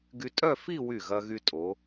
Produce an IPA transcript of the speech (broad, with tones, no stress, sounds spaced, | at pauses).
ɡ y˧ tʼ œ˥˧ f i˥˧ w y˧˩ ɣ ɐ˧ ɣ y˧ tʼ o˩˧